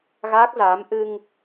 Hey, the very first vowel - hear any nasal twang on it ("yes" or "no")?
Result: no